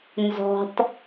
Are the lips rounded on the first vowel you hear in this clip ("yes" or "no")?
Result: yes